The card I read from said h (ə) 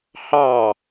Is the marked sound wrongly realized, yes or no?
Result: yes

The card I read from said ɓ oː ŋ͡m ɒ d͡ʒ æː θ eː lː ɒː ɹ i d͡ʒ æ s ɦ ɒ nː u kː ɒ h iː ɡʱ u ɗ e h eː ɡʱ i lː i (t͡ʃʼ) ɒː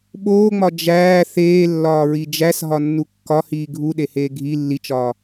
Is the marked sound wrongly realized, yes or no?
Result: yes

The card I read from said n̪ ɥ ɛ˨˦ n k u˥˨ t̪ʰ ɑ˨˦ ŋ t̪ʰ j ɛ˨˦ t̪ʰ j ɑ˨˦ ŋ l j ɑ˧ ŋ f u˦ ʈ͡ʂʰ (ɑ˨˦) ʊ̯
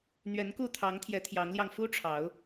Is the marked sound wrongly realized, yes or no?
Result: no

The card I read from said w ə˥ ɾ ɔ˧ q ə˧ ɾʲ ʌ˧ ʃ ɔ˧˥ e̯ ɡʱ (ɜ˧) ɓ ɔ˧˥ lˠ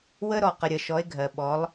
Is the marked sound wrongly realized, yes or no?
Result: no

